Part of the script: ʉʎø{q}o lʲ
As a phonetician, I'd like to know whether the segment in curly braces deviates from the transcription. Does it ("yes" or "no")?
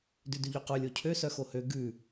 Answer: no